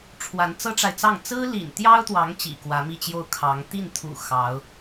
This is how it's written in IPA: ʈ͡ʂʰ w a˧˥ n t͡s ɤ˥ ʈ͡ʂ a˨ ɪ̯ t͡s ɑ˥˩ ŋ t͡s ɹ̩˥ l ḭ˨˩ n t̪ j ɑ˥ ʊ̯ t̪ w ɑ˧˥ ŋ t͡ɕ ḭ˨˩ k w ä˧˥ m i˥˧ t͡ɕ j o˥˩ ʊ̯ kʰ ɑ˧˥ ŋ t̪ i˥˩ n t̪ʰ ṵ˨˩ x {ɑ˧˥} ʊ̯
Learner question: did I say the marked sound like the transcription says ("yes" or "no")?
yes